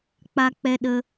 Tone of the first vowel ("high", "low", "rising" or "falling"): high